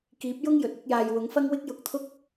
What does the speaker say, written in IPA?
k iː˨˥ p̚ j ʊ˥ ŋ j ɵ˨ t̚ ɪ˧ k̚ j aː˨ j w ʊ˨˥ ŋ f ɐ˥ ŋ w ɪ˥ k̚ j ʊ˧ k̚ t̪ʰ ʊ˥ k̚

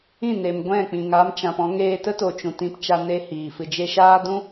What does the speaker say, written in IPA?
ĩ˦˨ n e˨ m ɡʷ ɛ̃˦˨ k͡p ĩ˨ ŋ a˦ m t͡ʃ ã˧ p ɔ̃˦ ŋ eː˧ t ə˦ t o˨ t͡ʃ ũ˨ t ĩ˧ p t͡ʃ a˧ n e˦ h iː˨ f ɨ˧ d͡ʒ e˧ ʃ aː˦ d ũ˦

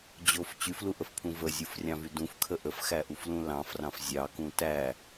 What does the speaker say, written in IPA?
d͡ʑ o f t͡ɕ y f l u ʔ ə f pʰ ũ v ə zʲ u f rʲ ɑ̃ v y d ũ f kʰ ə ʔ ə f x æ ʔ u f l ũ l ɑ̃ f r ɑ̃ f zʲ ɑ k ũ t æ

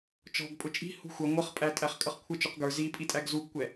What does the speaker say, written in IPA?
t͡ʃ ɔ̤ ɡ pʼ ʊ t͡ʃʼ i̤ h ṳ xʷ ʌ ŋʷ ʌ χ pʼ æ tʼ æ χ kʼ ʌ χ kʷʰ ɪ t͡ʃ u q ɡ ə˞ z i pʼ i tʼ æ ɡ z u ɡ kʷ ɛ

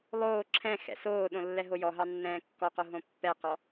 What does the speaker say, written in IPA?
lˠ oː ǁʰ ɛ̃ x ɛ̰ s oː ɗ õ lː ɛ ɦ o j ɔ ɦ ɑ nː ɛ̃ː kː ɔ q o ɦ õ pː ɛ q ɔ

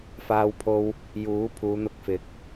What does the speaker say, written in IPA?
f aː˧ w pʰ o˧ w | j uː˨˥ pʰ uː˨˧ n̪ ʊ˧ k̚ f ɪ˨˥ k̚

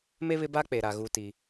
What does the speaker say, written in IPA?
m e˦ β ɪ˦ b a˦ k͡p e˨ ɾ a˨ ɣ u˦ t i˦

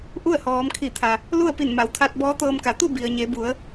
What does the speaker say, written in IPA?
ʔ u˥˨ ə̯ h ɔː˩˧ m kʰ i˧˩ t̪ʰ a˩ | l u˥˨ ə̯ p i˧˩ n m a˩˧ w t̪ʰ a˧ t̚ b ɔː˧˥ t̪ ɤː˧ m k a˩˧ t̪ u˥˨ b i˩ ə̯ ɲ e˩˧ b u˩˧ ə̯

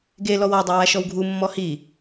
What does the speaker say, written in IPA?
ɡ e l ɔ w ɔ dˤ a w a ʃ ɔ w ɡʱ u mː ɔ h i

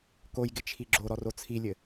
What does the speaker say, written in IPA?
k o j ɡ ɪ t͡ʃʰ i ɡ͡ǁ o ɾ ɔ r o t͡sʰ i lʲ ɘ

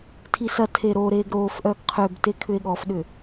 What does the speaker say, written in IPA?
tʰ i s ɐ tʰ e ɾ o ɾ eː ɡ ɾ oː f ʔ œ ɡ qʰ ø b t e kʰ ʏ e̯ ɠ ɔ f ɗ ʏ

